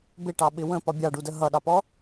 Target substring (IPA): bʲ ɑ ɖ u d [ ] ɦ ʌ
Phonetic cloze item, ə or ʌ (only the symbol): ə